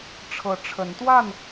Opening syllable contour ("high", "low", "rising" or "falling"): rising